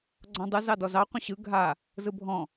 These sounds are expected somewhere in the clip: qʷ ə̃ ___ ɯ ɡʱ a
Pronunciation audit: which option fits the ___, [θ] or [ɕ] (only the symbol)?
ɕ